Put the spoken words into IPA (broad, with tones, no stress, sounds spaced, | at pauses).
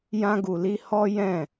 j ã˧ ɡ u˨ l i˧ h ɔ˦ j ɛ̃˦˨